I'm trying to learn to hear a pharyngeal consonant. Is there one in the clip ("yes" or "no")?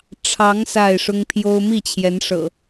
no